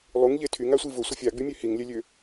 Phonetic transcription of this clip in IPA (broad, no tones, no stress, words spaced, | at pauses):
lˠuŋʎe tʰyŋasʷi vʊsʷɪ fʲaɡ͡bymʲø hiŋlʲɛlʲø